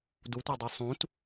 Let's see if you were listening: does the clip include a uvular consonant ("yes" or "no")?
no